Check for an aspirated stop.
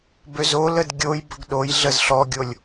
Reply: absent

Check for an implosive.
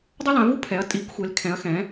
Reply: absent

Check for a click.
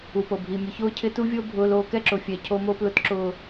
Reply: present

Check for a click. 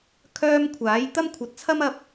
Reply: absent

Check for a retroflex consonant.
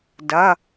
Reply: absent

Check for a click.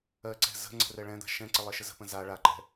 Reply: present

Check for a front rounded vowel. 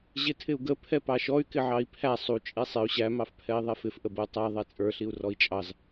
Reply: present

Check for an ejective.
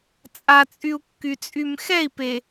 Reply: present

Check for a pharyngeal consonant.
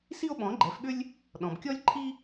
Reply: absent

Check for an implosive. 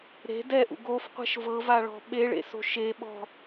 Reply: present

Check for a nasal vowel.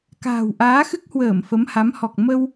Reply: absent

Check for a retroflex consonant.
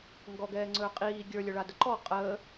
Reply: present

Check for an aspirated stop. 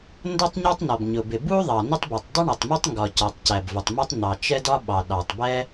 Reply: absent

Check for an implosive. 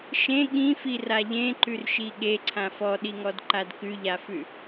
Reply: present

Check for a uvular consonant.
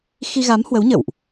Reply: absent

